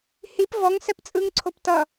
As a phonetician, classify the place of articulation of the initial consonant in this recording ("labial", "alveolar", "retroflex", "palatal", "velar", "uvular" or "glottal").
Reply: glottal